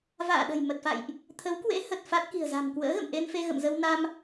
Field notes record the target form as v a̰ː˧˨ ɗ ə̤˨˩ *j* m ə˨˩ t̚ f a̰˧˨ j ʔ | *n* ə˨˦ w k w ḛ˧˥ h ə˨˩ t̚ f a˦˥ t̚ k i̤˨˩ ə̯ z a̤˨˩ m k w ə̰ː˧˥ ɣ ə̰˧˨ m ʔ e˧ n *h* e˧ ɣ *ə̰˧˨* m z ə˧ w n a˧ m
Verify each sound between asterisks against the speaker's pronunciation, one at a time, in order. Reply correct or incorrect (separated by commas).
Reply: correct, incorrect, incorrect, correct